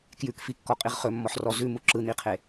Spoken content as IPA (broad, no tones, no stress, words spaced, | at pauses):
kjʉkfikːɔqʼiʁ χɵmːɔħrɔ zʉmu ǁɯn̪iqʰe